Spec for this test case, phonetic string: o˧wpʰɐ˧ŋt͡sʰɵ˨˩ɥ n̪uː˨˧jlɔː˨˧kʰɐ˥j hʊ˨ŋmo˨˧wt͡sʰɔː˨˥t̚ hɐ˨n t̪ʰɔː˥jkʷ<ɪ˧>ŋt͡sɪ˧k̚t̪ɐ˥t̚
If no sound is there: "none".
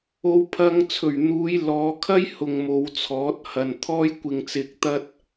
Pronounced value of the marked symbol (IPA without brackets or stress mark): ɪ˧